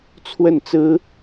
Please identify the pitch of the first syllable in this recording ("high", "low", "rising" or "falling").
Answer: falling